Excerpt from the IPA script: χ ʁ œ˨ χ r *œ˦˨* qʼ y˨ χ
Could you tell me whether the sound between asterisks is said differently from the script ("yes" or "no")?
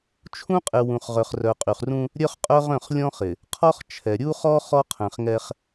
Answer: yes